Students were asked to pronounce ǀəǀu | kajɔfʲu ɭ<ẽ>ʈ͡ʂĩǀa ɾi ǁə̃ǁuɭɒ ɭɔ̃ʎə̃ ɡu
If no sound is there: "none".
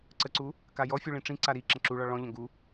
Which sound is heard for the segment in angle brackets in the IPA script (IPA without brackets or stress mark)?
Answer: ĩ